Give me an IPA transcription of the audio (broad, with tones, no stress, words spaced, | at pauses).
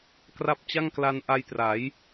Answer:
kra˦˥p̚t͡ɕa˥˩ŋkla˧n ʔa˧jtra˩˦j